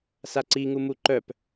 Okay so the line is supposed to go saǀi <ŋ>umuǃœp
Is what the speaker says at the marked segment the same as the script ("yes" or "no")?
yes